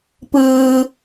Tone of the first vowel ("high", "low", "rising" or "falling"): low